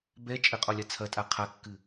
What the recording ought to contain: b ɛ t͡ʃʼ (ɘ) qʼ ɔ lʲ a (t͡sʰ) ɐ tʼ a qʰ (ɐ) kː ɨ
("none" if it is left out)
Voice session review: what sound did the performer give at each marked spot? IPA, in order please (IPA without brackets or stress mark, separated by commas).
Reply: ɘ, t͡sʰ, a